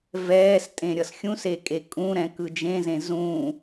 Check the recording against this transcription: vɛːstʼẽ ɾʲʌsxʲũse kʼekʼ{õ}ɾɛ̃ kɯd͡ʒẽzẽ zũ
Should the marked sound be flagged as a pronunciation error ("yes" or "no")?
yes